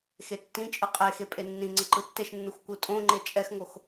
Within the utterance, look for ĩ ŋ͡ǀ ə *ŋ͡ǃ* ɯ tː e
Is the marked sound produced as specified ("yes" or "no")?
no